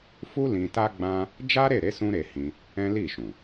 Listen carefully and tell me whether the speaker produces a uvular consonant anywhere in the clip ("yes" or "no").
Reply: no